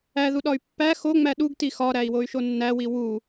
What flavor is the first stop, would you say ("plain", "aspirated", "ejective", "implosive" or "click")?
implosive